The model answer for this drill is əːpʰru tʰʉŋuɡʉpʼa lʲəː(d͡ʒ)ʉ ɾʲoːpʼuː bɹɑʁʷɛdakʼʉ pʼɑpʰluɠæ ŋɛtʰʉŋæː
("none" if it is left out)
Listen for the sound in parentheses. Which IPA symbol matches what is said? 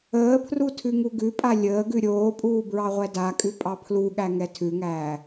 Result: ɡ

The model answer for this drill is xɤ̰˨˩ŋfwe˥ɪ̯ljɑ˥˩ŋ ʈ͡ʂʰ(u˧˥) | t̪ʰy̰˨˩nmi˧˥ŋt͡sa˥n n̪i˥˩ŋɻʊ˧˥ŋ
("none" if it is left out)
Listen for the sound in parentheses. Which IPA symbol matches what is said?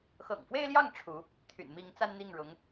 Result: u˧˥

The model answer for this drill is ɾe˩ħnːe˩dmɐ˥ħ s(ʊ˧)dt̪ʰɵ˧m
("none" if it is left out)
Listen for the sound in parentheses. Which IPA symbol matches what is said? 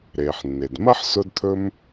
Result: ʊ˧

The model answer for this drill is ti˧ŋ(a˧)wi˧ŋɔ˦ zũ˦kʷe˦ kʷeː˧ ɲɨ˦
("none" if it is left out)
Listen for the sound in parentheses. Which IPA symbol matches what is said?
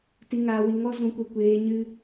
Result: aː˧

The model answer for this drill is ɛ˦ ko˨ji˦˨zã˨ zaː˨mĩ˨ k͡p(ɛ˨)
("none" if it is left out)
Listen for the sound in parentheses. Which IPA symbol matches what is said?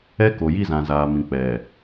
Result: ɛ˨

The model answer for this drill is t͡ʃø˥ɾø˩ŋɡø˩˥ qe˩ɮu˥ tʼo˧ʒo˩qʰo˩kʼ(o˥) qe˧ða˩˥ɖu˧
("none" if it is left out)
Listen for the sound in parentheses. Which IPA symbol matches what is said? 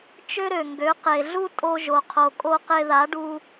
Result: o˧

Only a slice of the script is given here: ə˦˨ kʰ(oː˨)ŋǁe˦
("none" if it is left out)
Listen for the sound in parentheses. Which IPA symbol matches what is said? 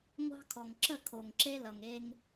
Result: o˨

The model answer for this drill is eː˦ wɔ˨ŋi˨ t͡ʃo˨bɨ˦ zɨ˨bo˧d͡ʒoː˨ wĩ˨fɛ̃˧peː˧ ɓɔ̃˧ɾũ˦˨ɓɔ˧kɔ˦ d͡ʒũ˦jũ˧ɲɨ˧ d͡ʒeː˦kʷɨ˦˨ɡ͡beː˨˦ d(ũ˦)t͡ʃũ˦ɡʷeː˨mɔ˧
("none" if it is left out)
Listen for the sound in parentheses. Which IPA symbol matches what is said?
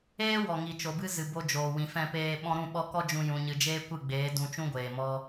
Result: ũ˧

